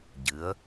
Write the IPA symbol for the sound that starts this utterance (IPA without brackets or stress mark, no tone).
ɟ